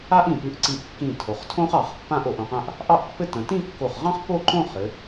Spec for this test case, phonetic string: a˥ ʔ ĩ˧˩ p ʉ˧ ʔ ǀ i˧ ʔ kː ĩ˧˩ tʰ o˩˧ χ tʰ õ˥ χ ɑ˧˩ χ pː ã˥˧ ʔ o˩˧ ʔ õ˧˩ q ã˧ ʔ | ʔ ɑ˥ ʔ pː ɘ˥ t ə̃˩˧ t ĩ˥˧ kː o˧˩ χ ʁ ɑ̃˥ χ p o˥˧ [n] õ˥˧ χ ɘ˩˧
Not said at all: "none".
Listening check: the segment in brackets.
ǃ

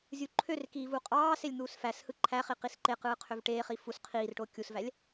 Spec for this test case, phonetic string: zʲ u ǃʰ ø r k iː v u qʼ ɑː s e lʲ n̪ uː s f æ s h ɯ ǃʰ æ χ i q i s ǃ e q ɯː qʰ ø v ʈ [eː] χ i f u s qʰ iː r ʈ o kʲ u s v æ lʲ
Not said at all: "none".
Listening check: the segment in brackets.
eː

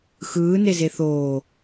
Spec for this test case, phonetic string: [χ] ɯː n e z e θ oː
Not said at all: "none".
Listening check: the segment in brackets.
x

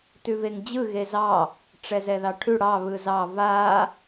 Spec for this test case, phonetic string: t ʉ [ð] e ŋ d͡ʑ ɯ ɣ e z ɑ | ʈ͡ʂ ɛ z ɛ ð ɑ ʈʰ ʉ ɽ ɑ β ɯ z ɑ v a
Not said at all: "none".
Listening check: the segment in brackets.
v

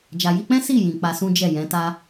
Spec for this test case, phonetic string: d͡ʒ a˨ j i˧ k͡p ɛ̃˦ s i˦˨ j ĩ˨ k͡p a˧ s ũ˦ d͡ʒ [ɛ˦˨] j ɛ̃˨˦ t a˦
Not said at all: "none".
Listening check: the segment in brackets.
ɛ˦˨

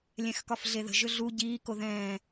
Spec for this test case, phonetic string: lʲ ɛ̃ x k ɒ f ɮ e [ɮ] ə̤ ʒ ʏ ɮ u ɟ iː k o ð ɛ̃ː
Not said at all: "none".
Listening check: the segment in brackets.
ð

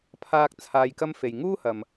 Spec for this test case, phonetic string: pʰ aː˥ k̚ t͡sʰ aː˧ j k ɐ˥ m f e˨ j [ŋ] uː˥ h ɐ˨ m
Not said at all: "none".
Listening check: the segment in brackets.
ŋ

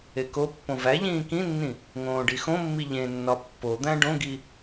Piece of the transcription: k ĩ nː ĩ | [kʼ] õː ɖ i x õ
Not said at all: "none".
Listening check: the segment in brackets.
ŋ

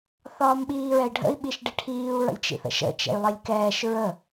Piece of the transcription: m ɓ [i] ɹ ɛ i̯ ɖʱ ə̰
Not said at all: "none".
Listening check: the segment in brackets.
iː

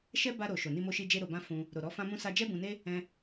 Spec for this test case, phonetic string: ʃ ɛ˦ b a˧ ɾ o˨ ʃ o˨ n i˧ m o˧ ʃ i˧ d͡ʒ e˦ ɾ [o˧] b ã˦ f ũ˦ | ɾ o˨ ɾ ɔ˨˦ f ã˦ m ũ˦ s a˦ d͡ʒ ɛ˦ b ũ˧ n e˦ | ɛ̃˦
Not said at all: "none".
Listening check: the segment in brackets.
o˧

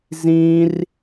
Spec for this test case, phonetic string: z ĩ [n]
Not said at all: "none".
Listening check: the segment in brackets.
r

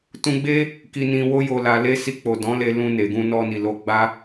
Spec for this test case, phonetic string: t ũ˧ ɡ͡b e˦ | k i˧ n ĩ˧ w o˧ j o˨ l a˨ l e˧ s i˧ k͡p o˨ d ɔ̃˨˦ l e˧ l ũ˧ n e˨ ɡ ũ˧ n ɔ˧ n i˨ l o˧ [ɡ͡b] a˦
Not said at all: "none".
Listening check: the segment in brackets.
ɡ͡b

